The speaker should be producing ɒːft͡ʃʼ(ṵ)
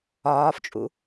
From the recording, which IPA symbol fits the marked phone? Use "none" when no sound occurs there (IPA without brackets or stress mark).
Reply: ṵ